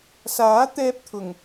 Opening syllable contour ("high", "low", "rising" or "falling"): rising